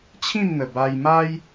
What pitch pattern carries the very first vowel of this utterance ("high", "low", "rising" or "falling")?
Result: falling